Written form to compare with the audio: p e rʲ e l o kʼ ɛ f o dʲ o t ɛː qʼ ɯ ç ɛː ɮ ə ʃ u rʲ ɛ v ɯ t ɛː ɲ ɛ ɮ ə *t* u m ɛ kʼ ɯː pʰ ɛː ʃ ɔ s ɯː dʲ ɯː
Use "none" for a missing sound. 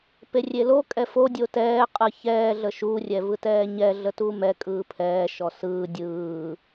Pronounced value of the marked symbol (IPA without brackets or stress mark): t